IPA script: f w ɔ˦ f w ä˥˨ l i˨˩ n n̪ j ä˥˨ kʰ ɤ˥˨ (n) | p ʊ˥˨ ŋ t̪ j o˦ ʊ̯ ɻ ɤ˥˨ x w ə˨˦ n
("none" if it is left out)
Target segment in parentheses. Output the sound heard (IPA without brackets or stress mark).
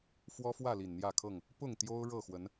ŋ